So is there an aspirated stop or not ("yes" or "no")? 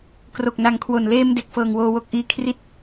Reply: yes